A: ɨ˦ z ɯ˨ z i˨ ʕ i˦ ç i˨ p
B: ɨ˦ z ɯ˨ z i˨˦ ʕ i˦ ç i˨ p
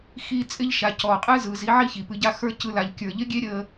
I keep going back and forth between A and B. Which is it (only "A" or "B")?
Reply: B